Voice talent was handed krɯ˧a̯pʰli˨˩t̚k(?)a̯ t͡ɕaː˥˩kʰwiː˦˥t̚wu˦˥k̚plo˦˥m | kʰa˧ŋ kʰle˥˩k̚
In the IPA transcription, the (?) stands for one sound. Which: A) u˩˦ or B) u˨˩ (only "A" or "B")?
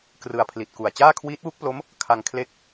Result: B